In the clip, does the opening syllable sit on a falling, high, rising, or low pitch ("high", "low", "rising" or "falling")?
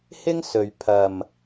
high